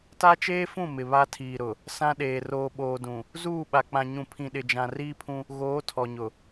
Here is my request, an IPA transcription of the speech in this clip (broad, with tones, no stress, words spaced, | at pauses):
ta˦t͡ʃeː˦fũ˦˨ mɪ˨βa˦tʰiː˨ɾʊ˨ | sã˦ɗeː˨ roː˨ɓoː˨dũ˨ | zuː˦˨ɓa˨ k͡pã˨ɲũ˨ pʰĩ˨ɗɪ˨d͡ʒã˨ riː˦pʰũ˦ | ɣoː˨˦tʰɔ˨ɲʊ˨